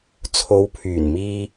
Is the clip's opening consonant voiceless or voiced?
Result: voiceless